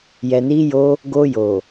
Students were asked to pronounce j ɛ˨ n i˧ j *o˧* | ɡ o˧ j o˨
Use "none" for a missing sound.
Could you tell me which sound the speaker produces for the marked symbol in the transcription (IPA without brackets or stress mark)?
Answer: o˧